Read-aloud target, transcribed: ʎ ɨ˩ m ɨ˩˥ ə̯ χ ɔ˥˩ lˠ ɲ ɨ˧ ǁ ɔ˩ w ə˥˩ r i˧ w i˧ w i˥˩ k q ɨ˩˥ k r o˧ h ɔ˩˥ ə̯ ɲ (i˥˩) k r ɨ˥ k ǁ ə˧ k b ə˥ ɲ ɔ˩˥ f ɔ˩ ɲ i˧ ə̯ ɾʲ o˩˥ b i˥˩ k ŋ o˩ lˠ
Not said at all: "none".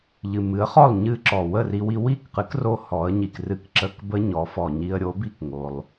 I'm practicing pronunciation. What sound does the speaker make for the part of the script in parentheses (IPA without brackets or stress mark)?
i˩